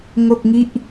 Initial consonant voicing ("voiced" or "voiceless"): voiced